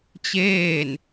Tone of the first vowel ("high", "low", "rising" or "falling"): falling